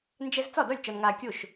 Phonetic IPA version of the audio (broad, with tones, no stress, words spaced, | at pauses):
nd͡ʒɛ˧z t͡sɒ˥˩dɒ˥˩lʲ t͡ʃɒ˧nŋaː˧kʲo˥˩ʃ